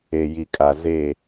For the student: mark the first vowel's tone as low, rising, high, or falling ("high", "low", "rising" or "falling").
low